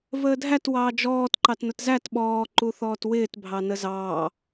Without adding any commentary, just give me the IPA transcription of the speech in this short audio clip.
v əː dʱ æ t w ɑː d͡ʒ ɔː t ǃ ɑ t n ʊ t z æ t ɓ ɔː ǃ u θ ɔː t w ɪː t bʱ ɑ n ə z ɑː

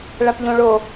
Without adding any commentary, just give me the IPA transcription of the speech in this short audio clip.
ɭ a p ʎ õ ɭ o

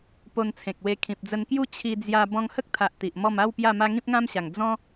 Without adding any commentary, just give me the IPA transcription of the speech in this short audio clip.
p o˧ n t͡sʰ ẽ˨ k̚ w e˧ kʰ ĩ˨ p̚ d͡z ə˧ n k j u˦ t͡ɕʰ i˧ d͡z j a˧ b ɔ̃˧ ŋ h ə˦ k̚ t̪ʰ a˨ ʔ t̪ i˨ ʔ m ɔ˥˧ m a˥˧ w p j a˥˧ m a˦ ŋ ĩ˦ p̚ ŋ ã˦ m ɕ a˨˩ ŋ d͡z ɔ̃˦

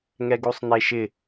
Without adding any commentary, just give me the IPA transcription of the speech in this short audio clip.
ŋ ɛ ɡ u sˤ n̪ e ʃ ɪ

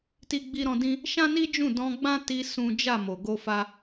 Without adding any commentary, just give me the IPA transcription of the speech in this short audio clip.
t i˦ ɡ͡b i˦ ɾ ɔ̃˦ d ĩ˦ | ʃ ã˦ n i˦ d͡ʒ ũ˦˨ d ɔ̃˧ ɡ͡b ã˦ t i˧ s ũ˦ d͡ʒ a˦˨ m o˨ ɡ o˧ f a˧

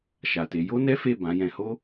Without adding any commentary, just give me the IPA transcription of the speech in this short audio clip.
ʃ a˨ t e˨˦ j o˦ n ɛ˦ f e˦˨ b ã˨˦ j ɛ̃˧ h o˦

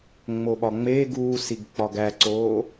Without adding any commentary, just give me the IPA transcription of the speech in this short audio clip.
ŋ͡m o ɓ ɒ ŋ͡m eː ɡ uː s i ɡ k͡p ɒ ɡ æ ǀ oː

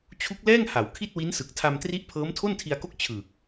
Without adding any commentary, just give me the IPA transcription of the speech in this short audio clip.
t͡ɕʰ u˦˥ k̚ l ɛː˥˩ ŋ h a˩˦ w kʰ i˥˩ t̚ w i˦˥ n s ɯ˨˩ k̚ tʰ a˧ m t r i˦˥ ʔ pʰ ɤː˦˥ m tʰ o˥˩ n tʰ i˧ a̯ k o˥˩ k̚ t͡ɕʰ ɯː˨˩ k̚

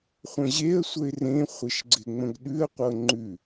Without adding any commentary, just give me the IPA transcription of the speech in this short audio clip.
χʷ ə̃ ʑ e ə̯ sʷ ə ɪ̯ r ẽ χʷ ɪ ʃ ɡ͡ǀ ɪ ŋ͡m ə̃ ɡ ɗ ʉ ə̯ qʷ ɤ ŋ͡ǃ ʉ

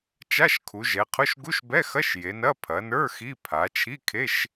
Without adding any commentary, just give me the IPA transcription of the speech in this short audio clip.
t͡ʃ a˧˥˧ ʃ kʰ u˩˧ ʒ ɛ˩˧ qʰ ʊ˧˥˧ ʃ ɡ u˧˥˧ ʃ b ɛ˧˥˧ x ɐ˧˥˧ ʃ j e˩˧ n ɐ˧˥˧ pʰ ɐ˩˧ n ə˞˧˥˧ x i˧˥˧ pʰ a˩˧ t͡ʃʰ i˧˥˧ kʰ e˧˥˧ ʃ

